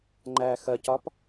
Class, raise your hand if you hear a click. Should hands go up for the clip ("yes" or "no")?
yes